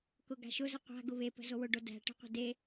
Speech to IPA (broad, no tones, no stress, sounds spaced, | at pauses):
k ʊ ɡ a̤ ʃ ʊ z ə qʷ a̤ ɡ ʊ β e p ə̤ z o w ʊ ɖ o d æ̤ ʈ ə̤ qʷ ə̤ d e